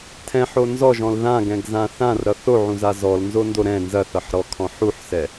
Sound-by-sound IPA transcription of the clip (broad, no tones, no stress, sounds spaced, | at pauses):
tʰ ɛ̃ ħ o n z ɔ ʒ ɔ̃ l ð ã ɡ ɛ̃ ɡ z ã θ ã r ɾ ʌ θ o ʕ ũ z a z ɔ l n z o n d o ɾ ɛ̃ n z ɐ θ ʌ ħ ɾ ɔ kʰ ɔ̃ ħ u ħ s ɛ